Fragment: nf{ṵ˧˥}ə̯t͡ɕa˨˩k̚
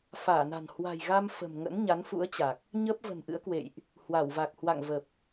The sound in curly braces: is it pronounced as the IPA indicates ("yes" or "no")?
yes